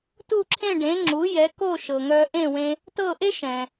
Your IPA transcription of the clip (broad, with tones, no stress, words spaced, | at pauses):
tu˥˩ǁʰẽ˥˩ɖẽ˩˥ ŋ͡ǁu˩˥ jɛ˩˥ ko˥˩ʃɤ˩ ŋœ˧ʔẽ˥˩wẽ˧ | tɤ˥˩ʔe˥ ʃɛ̃˩